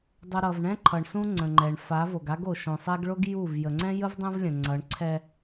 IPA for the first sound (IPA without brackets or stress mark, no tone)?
dˤ